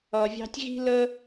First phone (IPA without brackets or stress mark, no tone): ʌ